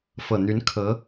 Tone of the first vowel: low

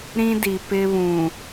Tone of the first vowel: high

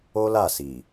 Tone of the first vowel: high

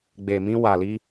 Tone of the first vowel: low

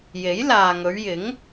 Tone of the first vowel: rising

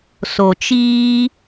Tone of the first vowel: low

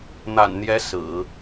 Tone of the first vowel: low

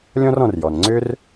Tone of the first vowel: high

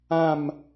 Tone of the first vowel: falling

